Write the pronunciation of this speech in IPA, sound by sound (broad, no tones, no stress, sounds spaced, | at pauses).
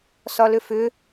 s ɒ l ʏ f ʏ